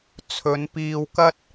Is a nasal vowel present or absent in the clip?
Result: absent